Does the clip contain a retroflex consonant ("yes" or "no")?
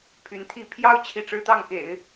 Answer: yes